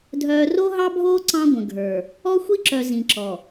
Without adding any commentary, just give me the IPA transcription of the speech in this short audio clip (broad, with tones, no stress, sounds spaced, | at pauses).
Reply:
dʱ œː˨ r o˦ ɦ ɑ˦ bʱ oː˦ ǀ ɑ̃˦ ɡʷ ə̃˨ ɡʱ ə˞˨ | ɔ˦ xʷ i˦ ǁ œ˨ z ĩ˨ ǁ ɔ˨